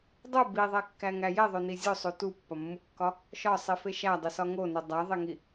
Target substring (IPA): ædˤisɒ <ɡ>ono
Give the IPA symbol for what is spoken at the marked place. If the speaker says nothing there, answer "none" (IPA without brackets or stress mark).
ŋ